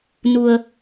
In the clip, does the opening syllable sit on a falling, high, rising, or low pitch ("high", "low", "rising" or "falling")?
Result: low